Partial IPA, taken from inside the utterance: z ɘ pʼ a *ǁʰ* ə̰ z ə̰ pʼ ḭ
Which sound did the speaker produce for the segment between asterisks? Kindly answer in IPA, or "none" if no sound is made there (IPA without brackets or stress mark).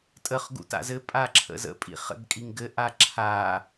ǁʰ